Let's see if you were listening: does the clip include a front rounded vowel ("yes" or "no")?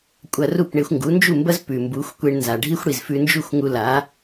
no